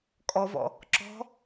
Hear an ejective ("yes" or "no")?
yes